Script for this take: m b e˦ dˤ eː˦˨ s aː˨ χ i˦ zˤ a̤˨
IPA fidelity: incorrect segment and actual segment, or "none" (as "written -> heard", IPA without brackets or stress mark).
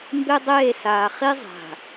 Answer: none